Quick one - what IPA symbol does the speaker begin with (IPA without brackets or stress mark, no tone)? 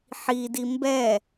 ħ